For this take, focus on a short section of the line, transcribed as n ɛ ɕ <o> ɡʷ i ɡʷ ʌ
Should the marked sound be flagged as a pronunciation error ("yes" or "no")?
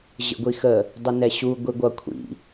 yes